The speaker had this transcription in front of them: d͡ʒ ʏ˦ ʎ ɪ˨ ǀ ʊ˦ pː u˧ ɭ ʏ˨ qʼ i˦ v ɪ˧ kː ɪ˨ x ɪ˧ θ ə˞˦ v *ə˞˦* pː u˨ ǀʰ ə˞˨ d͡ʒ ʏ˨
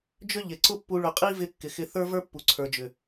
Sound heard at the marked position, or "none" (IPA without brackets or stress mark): ə˞˦